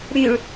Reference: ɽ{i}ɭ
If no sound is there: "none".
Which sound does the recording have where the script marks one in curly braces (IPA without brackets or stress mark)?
y